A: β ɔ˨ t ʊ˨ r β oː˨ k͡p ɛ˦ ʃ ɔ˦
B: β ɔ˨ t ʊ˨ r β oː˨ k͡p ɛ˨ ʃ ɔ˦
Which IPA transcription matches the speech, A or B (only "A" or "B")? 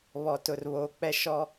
A